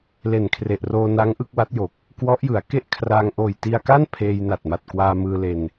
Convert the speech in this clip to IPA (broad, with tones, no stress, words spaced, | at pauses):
le˨˩nkʰre˨˩ʔroː˧ na˦˥ŋʔɯ˥˩k̚wa˦˥t̚jo˨˩k̚ | kwɔ˦˥ʔjɯ˩˦a̯ ke˥˩ʔkʰraː˧ŋ ʔoː˨˩jti˧a̯ka˥˩n pʰeː˧jna˨˩t̚ma˨˩t̚ kwaː˧mɯː˧le˧n